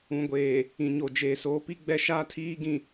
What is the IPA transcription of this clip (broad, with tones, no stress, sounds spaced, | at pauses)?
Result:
ũ˨ ɡʷ eː˨ | ĩ˨ ɲ o˨ d͡ʒ eː˨ s oː˨˦ p i˦ ɡ͡b ɛ˦ ʃ aː˦ tʰ iː˦ ɡ ĩ˨